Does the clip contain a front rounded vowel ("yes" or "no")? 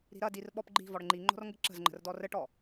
no